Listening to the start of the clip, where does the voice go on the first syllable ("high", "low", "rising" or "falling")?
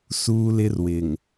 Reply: high